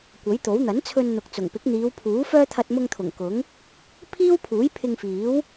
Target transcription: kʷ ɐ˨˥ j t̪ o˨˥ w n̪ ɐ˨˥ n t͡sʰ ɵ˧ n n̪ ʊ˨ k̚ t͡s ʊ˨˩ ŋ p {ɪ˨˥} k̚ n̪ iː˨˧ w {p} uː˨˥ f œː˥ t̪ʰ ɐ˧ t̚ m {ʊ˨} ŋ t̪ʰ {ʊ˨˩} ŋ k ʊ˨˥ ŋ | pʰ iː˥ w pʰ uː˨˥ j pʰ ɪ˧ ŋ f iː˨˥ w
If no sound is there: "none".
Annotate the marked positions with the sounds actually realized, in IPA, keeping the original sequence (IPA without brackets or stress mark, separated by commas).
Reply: ɪ˨˥, pʰ, ʊ˧, ʊ˨˩